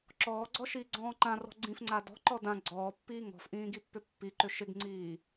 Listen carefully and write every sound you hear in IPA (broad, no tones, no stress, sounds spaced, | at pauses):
ǁ ɔː ɡ͡ǀ ɔ ʃ iː ɡ͡ǀ ɔ̃ː ǃ ã r ɔ̤ ɡ͡ǀ ĩ f ŋ͡ǀ a d ɔ̤ ǃ ɔ d ã ɡ͡ǀ ɔː pː iː ŋ ɔ̤ f ʔ ĩː ɡ i pː ʏ pː i ǃ ʏ ʃ ɪ ɡ ŋ͡ǀ iː